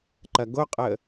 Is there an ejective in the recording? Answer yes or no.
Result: yes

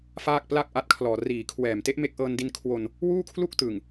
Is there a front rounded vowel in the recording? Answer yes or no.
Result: no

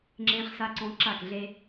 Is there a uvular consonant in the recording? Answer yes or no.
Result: yes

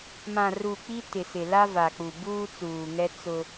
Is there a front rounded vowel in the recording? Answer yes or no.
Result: no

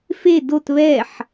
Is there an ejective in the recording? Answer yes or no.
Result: no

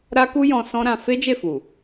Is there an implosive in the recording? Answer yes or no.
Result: no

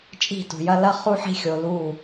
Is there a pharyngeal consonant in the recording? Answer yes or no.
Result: yes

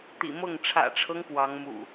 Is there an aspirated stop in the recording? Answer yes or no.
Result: yes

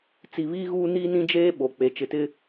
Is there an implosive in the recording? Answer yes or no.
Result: yes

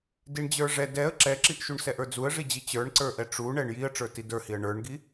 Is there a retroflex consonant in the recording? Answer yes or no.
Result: yes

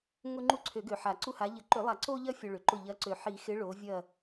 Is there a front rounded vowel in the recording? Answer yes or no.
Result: yes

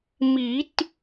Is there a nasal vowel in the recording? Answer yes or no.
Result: no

